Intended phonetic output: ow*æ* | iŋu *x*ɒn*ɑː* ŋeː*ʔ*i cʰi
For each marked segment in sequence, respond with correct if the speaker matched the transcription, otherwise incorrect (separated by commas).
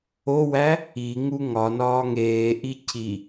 correct, incorrect, incorrect, correct